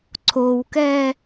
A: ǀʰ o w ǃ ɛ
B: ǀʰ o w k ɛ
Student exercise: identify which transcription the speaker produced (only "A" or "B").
B